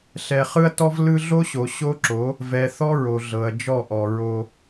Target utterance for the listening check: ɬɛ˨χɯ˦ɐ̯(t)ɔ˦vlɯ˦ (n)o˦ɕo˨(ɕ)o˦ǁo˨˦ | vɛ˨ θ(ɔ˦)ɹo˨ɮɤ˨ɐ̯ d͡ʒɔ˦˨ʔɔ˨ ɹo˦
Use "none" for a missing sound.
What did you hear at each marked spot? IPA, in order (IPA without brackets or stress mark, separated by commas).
t, ɮ, ɕ, ɔ˦